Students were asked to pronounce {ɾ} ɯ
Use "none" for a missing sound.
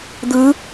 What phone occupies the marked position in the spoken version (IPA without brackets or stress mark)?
d̪